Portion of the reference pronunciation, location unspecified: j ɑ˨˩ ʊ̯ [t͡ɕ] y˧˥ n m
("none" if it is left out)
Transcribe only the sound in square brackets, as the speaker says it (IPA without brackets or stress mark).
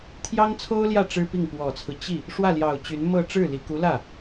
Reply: t͡ɕ